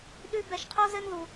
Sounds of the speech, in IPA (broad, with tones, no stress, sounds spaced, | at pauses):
ɗ ʉ˦ b ɛ˧ ʃ qʰ o˦ z ɘ˦ n ð u˧